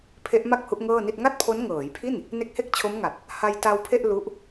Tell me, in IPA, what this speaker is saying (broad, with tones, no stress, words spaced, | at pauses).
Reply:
pʰe˦˥ʔma˥˩k̚ hu˦˥ʔŋɤː˥˩ni˥˩t̚ ŋa˥˩t̚pʰo˦˥nŋɤː˩˦jpʰi˥˩n | ne˦˥k̚he˥˩k̚t͡ɕʰo˦˥mŋa˨˩t̚ | ha˧jta˧wpʰe˥˩ʔ lu˦˥ʔ